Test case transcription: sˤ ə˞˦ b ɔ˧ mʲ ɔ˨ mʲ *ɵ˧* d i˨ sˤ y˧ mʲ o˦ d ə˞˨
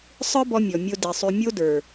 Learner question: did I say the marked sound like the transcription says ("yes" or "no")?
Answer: no